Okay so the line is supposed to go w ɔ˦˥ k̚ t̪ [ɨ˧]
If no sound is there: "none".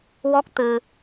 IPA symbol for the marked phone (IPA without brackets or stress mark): ɨ˧